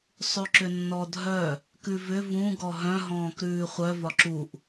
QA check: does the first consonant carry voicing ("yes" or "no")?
no